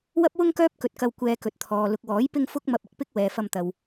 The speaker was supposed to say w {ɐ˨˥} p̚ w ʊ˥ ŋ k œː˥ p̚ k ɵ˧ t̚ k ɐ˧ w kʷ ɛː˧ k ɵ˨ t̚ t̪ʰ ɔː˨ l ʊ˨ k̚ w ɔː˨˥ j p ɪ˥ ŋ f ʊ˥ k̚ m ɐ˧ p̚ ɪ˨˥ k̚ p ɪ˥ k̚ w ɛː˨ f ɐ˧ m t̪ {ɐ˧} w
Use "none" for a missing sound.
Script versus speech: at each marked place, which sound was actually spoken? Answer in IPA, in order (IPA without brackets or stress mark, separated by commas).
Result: ɐ˥, ɐ˨